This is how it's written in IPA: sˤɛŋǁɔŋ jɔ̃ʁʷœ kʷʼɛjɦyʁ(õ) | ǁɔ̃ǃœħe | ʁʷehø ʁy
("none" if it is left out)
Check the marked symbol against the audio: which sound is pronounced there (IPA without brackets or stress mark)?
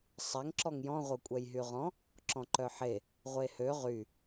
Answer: ɔ̃